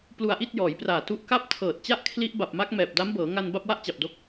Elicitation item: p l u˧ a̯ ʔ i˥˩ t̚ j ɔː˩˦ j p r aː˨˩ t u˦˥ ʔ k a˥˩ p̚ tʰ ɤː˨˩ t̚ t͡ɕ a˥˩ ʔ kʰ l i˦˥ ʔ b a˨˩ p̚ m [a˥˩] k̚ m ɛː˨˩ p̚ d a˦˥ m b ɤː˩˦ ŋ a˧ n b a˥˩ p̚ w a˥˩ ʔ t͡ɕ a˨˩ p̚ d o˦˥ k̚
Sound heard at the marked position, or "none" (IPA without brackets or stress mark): a˦˥